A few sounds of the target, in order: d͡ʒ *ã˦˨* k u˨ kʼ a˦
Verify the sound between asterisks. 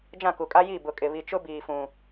correct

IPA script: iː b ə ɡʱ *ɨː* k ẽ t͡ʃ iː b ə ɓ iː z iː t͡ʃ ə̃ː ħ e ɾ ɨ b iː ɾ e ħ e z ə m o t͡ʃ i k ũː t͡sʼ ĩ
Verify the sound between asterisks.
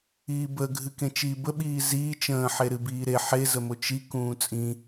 incorrect: ɨ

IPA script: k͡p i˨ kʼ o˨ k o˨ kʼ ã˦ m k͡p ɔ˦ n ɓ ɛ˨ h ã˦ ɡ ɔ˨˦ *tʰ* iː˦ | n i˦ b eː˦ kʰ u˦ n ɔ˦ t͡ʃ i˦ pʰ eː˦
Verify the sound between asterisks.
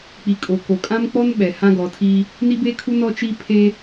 correct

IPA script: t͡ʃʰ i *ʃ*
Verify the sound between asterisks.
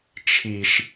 correct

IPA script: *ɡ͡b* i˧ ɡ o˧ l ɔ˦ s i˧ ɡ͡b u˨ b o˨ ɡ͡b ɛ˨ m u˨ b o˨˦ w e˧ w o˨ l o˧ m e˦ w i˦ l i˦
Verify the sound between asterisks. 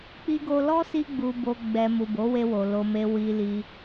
incorrect: k͡p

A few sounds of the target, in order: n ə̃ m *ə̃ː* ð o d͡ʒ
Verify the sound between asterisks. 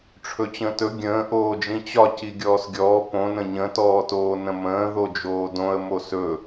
correct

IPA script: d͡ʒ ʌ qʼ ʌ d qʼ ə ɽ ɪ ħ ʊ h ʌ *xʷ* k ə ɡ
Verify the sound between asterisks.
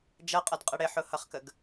incorrect: χ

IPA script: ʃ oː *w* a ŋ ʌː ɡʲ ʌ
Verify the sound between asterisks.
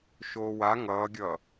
correct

